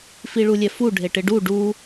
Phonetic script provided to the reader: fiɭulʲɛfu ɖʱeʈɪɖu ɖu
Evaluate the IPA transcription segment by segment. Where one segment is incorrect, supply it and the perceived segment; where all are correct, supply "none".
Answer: none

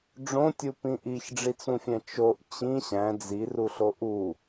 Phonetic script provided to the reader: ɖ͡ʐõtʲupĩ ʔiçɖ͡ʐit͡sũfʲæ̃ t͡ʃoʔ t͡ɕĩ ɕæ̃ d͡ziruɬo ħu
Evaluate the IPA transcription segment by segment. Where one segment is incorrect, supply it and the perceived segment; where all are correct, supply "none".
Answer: ħ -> ʔ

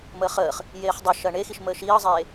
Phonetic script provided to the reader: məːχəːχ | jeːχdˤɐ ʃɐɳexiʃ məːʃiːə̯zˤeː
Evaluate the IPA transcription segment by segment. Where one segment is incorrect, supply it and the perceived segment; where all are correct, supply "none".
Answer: none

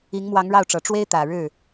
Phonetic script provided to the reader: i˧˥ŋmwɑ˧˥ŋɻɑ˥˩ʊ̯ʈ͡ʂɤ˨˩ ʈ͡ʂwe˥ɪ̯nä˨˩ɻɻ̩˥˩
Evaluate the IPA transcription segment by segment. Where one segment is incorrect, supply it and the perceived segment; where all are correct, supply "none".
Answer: n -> t̪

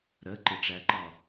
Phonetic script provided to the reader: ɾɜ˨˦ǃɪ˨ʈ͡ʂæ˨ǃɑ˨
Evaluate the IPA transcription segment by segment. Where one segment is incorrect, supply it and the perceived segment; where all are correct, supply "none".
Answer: none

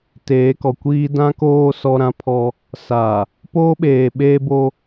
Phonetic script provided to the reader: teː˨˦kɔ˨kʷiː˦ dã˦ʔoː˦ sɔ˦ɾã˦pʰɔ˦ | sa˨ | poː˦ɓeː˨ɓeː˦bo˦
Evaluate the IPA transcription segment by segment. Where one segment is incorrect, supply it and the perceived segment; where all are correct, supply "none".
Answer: ʔ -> k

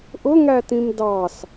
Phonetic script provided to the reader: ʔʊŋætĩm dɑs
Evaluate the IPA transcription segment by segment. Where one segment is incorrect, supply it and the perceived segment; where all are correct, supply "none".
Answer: none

